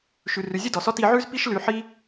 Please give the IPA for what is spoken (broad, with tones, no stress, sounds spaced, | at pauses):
ʃ ʉ˩ r ʉ˩ zʲ u˥ d ɔ˩ s ɔ˥ t i˧ ʕ ʉ˥ z p i˥ ʃ l ʉ˧ ħ i˥